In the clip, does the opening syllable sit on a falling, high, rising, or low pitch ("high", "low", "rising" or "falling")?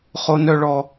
high